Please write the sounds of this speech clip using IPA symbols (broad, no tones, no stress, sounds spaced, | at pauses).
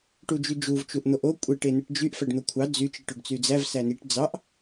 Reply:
ʈ u d͡ʒ y d͡ʒ u v t͡ʃ u ʔ n̪ o ʔ o kʷʼ e ʈ e n ɯ ʈ d͡ʒ y ʔ f æ ɖ n̪ o kʷʰ ɑ d͡z y t͡ʃ i ʈ o ɖ t͡s y d͡z æ v s æ n i ʈ d͡z ɑ ʔ